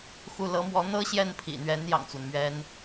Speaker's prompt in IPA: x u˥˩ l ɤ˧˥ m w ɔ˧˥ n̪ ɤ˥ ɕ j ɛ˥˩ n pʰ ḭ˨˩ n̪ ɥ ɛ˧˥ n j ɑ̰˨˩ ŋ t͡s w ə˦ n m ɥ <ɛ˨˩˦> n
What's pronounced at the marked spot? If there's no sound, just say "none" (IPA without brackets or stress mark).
ɛ˥